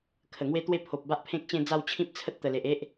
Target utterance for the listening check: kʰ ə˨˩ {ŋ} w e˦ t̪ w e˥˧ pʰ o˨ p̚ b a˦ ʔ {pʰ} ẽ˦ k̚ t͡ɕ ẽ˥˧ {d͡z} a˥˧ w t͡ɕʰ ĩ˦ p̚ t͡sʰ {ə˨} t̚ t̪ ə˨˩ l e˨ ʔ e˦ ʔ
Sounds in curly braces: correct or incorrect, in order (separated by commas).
correct, correct, correct, incorrect